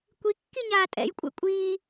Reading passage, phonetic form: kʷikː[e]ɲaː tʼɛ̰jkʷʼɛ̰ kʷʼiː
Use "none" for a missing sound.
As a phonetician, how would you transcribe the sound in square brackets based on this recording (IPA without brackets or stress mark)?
i